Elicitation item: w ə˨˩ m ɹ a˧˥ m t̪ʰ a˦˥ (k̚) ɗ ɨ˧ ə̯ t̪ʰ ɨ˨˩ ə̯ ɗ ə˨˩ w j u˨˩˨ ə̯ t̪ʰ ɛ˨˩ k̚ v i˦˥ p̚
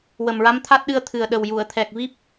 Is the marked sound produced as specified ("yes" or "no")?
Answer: no